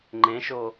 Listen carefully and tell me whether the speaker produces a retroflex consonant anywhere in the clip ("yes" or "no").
no